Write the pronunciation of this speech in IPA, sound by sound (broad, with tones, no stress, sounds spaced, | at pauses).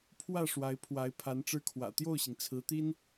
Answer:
pʰ w ä˥˩ ʂ w a˧˥ ɪ̯ pʰ w a˧˥ ɪ̯ pʰ a˧˥ n ʈ͡ʂ ɻ̩˥ kʰ w ä̰˨˩ t̪ j o˥˩ ʊ̯ ɕ i˩ ŋ t͡sʰ ɹ̩˧˥ t̪ i˥ n